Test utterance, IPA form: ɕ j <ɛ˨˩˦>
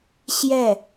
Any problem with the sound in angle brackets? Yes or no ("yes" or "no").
yes